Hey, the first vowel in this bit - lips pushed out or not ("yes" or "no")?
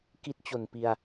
no